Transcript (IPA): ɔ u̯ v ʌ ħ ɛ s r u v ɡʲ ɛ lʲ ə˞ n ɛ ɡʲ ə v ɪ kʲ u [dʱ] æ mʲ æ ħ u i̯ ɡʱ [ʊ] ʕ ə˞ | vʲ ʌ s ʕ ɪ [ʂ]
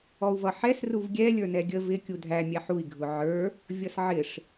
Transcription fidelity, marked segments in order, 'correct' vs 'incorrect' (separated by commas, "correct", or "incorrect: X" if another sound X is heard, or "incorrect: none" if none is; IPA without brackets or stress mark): correct, correct, correct